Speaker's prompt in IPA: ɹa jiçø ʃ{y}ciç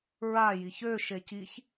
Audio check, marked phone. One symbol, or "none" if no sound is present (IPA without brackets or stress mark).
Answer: e